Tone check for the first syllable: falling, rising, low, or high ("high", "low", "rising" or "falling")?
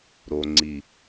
low